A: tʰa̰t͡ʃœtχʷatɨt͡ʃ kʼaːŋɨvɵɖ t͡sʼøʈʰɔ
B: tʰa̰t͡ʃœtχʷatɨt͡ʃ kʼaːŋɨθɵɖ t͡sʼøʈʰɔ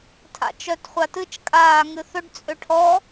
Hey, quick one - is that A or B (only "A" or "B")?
B